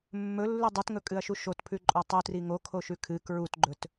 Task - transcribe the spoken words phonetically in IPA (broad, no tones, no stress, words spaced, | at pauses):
mːɵlːʉ dˤʉtŋɵkʼɨɐ̯ʃu ʃotpʰʉǃʼo tˤutri ŋokʰoʃʉ kʰɨ kɹutɡ͡ǃɵt